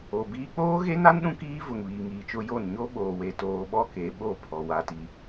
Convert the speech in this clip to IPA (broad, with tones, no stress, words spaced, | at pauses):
o˨biː˦ k͡poː˦ɣe˦na˦n ɗũ˦kiː˦vʊ˨ŋ βiː˨ŋiː˨t͡ʃʊ˦jo˦˨n ɲo˦ɓoː˨we˨ toː˨ɓɔ˦ ke˨˦ɓo˦˨pʰɔ˨ wa˨ti˨